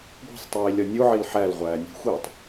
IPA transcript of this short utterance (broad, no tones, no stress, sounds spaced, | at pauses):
ɡʷ e̤ sˤ tˤ iː lʲ ɒ nʲ u ʕ i l ħ æ l ʁʷ æː nʲ ṳ xʷ iː tˤ